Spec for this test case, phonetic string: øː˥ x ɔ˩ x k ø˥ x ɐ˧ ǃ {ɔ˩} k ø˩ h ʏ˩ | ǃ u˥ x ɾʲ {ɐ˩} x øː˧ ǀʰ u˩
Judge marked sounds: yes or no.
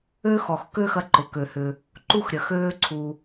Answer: no, yes

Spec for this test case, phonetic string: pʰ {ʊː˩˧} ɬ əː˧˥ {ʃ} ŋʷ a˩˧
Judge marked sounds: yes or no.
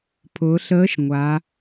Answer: yes, yes

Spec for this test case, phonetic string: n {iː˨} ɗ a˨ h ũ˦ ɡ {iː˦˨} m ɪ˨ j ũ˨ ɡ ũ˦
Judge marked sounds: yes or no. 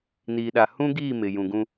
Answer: yes, yes

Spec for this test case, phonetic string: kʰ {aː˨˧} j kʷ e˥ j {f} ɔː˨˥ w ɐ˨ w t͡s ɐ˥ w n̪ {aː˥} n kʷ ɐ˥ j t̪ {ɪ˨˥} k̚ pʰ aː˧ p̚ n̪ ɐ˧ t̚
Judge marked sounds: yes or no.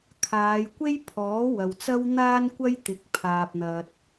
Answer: yes, no, yes, yes

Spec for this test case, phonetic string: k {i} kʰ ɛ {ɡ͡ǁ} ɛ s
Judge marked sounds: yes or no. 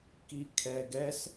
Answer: yes, no

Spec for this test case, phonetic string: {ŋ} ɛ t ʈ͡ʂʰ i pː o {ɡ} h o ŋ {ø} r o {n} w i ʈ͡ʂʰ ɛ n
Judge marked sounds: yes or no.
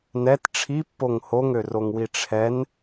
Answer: no, no, yes, no

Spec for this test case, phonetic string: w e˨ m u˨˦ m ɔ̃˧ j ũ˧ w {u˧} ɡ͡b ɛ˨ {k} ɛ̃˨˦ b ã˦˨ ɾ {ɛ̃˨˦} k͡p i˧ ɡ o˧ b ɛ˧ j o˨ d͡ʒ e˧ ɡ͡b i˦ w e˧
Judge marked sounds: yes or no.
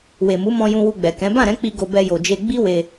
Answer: yes, yes, yes

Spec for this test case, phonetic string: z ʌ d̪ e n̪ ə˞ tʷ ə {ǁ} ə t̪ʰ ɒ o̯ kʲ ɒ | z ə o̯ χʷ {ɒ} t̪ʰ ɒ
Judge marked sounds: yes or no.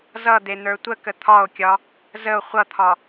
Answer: no, no

